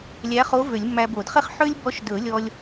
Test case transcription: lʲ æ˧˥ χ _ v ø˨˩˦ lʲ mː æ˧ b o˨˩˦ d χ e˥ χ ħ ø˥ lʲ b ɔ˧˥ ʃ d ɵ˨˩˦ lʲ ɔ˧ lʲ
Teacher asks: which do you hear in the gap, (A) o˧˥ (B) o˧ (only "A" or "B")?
A